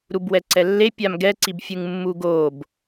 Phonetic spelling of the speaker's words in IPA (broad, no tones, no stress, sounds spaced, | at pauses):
ɾ u b w ɛ ǀ ɛ lː e pʲ a m ɡ ɛ ǀ i b fʲ ɯ ŋ mː u ɡ o b